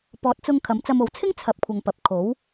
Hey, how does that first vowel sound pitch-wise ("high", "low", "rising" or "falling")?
rising